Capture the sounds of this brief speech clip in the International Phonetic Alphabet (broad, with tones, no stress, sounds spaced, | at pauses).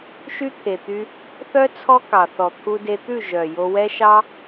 ʃ y˦ t̪ʰ e˨ t̪ y˧ | θ œ˦ t͡sʰ ɔ˦ k ɑ˨ θ ɔ˨ t̪ʰ u˧ d e˧ t̪ ʉ˦˨ ʒ œ˨ j o˧ w ɛ˦ ʃ ɑ˦